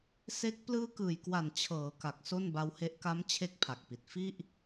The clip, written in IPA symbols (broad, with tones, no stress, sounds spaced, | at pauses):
s e˦˥ k̚ p l ɯː˦˥ k ɯː˨˩ j k w a˨˩ n t͡ɕʰ ɤː˩˦ k a˨˩ k̚ s o˥˩ n b a˦˥ w h e˦˥ ʔ k a˦˥ m t͡ɕʰ e˦˥ k̚ pʰ a˨˩ k̚ p i˨˩ t̚ f i˥˩ ʔ